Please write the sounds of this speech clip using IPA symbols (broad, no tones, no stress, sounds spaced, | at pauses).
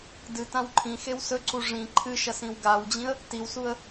d ɨ t ã w ǃʰ ĩ x e w s ɵ ǀ u ʐ ĩ ǃʰ ɨ ʃ ɐ s ĩ w ɡ a w d͡ʑ ĩ ə̯ | t i w s u ə̯